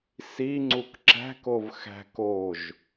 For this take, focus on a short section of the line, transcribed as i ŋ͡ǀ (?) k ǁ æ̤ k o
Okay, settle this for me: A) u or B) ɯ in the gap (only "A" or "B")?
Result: A